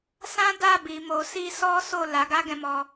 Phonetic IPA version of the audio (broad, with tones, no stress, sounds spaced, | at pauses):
s ã˦ d a˦˨ b i˨ m o˨ s i˧ s ɔ˦ s o˦˨ l a˨˦ ɡ a˦ ɡ ɛ̃˧ m ɔ˧